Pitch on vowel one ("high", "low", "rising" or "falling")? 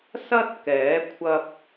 high